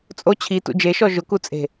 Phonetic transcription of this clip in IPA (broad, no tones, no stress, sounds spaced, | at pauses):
t͡sʼ o t͡ɕʰ i t ṵ d͡ʒ e ʃ ɔ ʒ ʊ k u t͡sʼ e̤